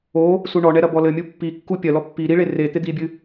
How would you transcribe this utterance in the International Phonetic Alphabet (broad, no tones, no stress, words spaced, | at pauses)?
o | suɳɔɳɛ ɾɐbɔlɘmʲu pːikːu pʲɐlɔ pːi ɾiɭe re t̪ed̪ibʲɨ